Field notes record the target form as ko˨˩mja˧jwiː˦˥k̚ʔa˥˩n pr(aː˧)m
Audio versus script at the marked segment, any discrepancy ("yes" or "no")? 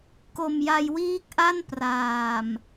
yes